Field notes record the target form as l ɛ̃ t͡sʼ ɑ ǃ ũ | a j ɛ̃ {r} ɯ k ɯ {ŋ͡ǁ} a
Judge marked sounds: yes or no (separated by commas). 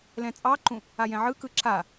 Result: no, no